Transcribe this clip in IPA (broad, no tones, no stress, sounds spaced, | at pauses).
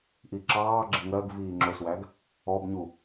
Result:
ʔ i ǁ ɑː ɡ͡ǁ ɪ ŋ ɜ ɡ v iː ŋ͡ǁ ʊ s w æ ɡ | ɔ b ɲ u